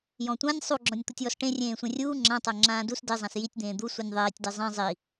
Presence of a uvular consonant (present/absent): absent